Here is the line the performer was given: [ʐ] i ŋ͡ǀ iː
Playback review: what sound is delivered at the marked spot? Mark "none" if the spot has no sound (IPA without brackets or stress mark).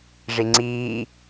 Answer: ʐ